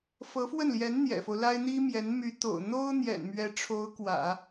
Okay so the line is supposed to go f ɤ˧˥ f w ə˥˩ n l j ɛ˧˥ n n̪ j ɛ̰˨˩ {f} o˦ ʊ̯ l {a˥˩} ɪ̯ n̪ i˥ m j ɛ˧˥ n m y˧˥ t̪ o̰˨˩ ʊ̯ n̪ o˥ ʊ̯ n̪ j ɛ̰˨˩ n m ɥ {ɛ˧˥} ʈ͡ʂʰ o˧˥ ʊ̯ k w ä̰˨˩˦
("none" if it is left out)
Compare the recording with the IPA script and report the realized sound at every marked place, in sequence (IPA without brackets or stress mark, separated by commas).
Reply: f, a˥, ɛ˧˥